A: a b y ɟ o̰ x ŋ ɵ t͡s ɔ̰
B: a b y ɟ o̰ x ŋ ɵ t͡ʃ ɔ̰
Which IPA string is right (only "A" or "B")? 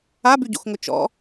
B